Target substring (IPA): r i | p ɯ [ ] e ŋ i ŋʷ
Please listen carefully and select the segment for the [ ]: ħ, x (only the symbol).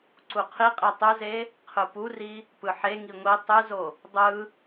ħ